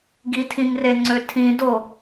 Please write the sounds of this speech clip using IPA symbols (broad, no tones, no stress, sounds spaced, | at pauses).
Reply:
ɡ i tʰ ĩ ŋ r e ŋ͡ǀ ø tʰ ĩ d o